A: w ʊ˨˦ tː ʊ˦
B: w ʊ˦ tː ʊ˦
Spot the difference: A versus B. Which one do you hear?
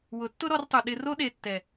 A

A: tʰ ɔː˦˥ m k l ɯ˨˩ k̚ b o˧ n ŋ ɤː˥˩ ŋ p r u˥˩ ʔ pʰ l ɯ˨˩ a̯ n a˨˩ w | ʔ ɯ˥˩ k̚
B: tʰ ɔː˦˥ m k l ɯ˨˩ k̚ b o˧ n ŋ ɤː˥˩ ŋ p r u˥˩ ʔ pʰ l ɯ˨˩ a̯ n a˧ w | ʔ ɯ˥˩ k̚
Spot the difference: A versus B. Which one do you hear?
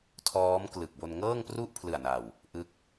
A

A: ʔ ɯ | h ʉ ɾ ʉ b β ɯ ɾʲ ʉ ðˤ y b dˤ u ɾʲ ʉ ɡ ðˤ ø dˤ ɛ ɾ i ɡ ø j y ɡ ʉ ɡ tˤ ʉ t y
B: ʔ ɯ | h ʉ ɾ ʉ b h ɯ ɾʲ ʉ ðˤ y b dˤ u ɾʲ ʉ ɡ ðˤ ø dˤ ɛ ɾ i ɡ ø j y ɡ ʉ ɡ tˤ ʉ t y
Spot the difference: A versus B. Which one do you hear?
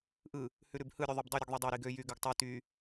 B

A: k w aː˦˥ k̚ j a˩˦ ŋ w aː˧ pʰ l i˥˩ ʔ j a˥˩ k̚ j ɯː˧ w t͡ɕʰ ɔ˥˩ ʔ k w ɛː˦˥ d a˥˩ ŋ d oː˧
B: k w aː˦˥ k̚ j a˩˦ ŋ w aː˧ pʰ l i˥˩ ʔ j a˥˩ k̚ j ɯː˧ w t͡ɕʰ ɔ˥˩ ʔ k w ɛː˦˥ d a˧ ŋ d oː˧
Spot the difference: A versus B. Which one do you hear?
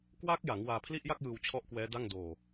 A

